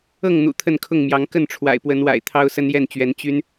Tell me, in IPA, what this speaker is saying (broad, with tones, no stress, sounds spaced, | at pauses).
ɤ˥˨ ŋ n̪ ṵ˨˩ t̪ʰ ə˥˨ n kʰ ʊ˥˨ ŋ m j ɑ˨˦ ŋ k ə˥˨ n ʈ͡ʂʰ w a̰˨˩ ɪ̯ p w ə˨˦ n w a̰˨˩ ɪ̯ t̪ʰ ɑ˦ ʊ̯ s ə˦ n j ɛ˥˨ n t͡ɕ ɥ ɛ˨˦ n t͡ɕ y˦ n